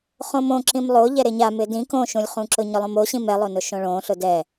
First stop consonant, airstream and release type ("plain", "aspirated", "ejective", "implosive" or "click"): click